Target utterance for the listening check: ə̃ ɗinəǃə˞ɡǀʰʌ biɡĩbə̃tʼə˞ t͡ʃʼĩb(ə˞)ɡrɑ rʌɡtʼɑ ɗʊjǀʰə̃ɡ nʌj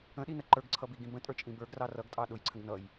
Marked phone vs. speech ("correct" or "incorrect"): correct